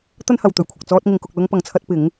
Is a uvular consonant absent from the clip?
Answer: yes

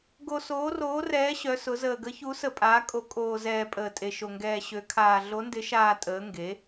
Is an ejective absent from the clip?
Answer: no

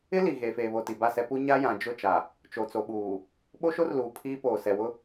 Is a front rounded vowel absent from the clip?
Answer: yes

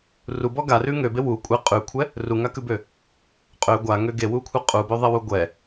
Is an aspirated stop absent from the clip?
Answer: no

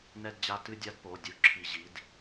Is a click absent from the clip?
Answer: no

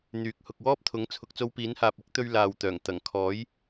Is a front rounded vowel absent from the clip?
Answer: no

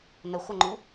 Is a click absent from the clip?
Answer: no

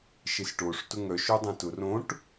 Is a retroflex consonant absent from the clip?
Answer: no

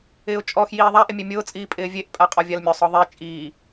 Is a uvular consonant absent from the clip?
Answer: no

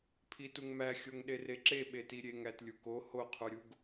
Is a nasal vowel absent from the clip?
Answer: yes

